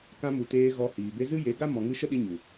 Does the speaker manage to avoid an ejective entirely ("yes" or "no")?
yes